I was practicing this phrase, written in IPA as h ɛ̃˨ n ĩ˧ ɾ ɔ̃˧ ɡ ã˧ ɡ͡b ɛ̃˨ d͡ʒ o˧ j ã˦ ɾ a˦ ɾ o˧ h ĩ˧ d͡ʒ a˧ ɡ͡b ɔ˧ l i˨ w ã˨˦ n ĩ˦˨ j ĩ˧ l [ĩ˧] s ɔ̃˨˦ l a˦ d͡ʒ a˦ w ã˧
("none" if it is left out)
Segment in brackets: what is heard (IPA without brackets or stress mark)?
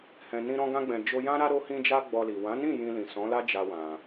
ĩ˨